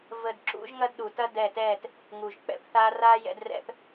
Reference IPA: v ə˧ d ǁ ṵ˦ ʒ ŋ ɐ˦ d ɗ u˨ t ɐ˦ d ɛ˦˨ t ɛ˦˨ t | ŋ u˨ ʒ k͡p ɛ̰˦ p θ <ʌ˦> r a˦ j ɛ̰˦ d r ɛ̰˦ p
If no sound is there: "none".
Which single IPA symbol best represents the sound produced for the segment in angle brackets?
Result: a˦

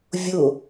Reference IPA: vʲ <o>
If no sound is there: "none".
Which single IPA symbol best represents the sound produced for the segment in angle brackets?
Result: o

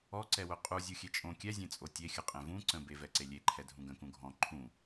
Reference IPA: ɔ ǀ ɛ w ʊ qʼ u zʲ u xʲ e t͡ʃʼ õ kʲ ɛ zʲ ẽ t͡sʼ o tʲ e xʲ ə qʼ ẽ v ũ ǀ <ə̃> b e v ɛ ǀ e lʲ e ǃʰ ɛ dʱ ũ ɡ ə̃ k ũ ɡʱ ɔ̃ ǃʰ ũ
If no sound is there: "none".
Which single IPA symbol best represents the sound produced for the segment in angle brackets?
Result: ə̃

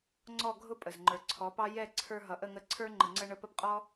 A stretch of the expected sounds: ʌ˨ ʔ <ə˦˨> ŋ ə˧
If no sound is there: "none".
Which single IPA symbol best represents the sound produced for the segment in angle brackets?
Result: ə˦˨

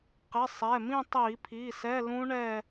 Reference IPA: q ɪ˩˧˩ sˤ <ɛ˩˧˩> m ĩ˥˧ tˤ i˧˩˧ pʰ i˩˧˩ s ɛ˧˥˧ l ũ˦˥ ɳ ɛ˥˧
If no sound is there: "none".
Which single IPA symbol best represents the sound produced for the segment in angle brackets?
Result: ɛ˩˧˩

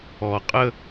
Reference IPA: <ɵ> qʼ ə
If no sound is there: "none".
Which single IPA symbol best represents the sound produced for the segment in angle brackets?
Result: ɔ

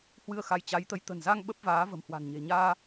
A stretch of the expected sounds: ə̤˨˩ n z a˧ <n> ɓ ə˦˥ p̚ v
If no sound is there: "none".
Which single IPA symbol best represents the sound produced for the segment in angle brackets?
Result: ŋ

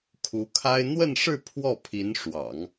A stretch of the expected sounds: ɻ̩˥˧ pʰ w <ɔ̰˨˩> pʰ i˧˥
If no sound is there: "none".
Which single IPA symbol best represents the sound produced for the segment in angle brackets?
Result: ɔ˥˩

